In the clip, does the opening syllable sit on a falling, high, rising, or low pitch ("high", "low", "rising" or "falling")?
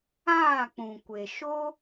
falling